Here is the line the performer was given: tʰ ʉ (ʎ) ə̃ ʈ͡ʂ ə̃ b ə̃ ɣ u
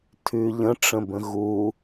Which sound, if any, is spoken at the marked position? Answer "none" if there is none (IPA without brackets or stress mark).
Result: ʎ